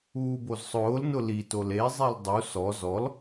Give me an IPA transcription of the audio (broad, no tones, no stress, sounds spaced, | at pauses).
uː b o z sˤ ʊː l n ʊ l i t o l e zˤ e l dˤ u s ɔ z ɔ l